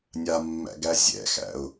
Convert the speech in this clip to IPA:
nʲamːæ̰ ɡæzʲɛ̰xæ̰ʊ̯

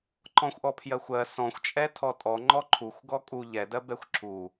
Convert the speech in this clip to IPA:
ǃɔ̃xʷʔɔpʰjɜxʷɜ sɔ̃xʷt͡ʃʼɛ tʰɔtʼɔ ŋ͡ǃɔǃʰuxʷɡɔ kʼu ʎɛdɜ bɛxʷǁʰu

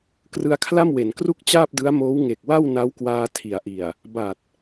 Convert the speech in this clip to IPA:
krɯ˧a̯ kʰla˥˩mwe˩˦nkru˥˩k̚ t͡ɕaː˥˩p̚dɯ˦˥a̯moː˦˥w ŋe˨˩k̚wa˥˩w na˦˥wkwaː˧ tʰi˩˦a̯ʔi˨˩a̯ | ba˨˩t̚

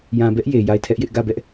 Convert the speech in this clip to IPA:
jã˨bɛ˦ʔ je˨ja˦˨ɪ̯tʰɛ˦ʔjɪ˦ʔ ɡä˦˨bɛ˦ʔ

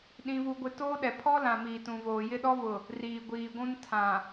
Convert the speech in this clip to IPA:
ɗĩ˦vu˦ɡʷɪ˦ toː˦ɗɛ˨ pʰɔ˦lã˨ miː˨tũ˨voː˨ jɪ˦ɗɔ˦vʊ˨ | riː˨ɡʷiː˨ɡʷũ˦n tʰã˨

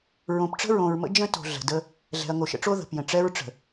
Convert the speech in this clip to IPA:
ɹõ˨pʈ͡ʂə̤˦ɹõ˨ɹmə̰˦ d͡ʒə̃˦ to̤˨ ɮə̤˨də˦ | ɮɛ̤˨ɐ̯ŋo˨ʃə̰˦ʈ͡ʂo˦ ðə̤˨pjə̃˨ ʈ͡ʂɛ˦ɹ ʈ͡ʂə̤˨

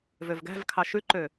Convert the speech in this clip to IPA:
vøvɡæ̤vkʰɑ ʃʉǃø

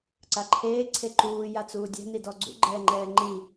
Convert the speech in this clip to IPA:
ǀaǃʰeː ǀʰeǃuː jat͡suːdʲɛ̤ nidɔɡ͡ǀṵ ɡ͡ǃɛːŋ͡ǃɛːŋ͡ǃi

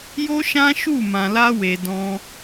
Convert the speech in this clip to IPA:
jo˦ʃã˦ʃu˦˨ mã˧la˦we˧ dɔ̃˧

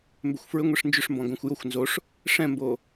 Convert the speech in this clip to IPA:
mbʏxʷfɹʏ ŋʷeʂnd͡ʒʏʂmbɔ̃ ɡõxʷjoxʷ nzoʂ | ʂɛ̃mbo

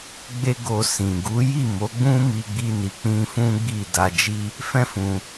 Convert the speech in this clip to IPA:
ɡ͡be˧ ɡo˧sĩ˨ ɡu˨˦ji˦˨mo˨˦ ɡ͡bũ˦mi˧ɡ͡bi˧ni˨ k͡pĩ˧fũ˦ ɡ͡bi˦˨ da˧d͡ʒi˦ | fɛ̃˦fũ˧

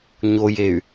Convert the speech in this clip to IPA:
ɲojey̯

